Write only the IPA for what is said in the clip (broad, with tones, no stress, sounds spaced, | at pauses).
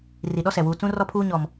r i˨ ɗ ɔ˦ s ɛ˨ w uː˨ t͡s ũ˦ r ɔ˦ pʰ uː˦ ɲ ɔ˦ m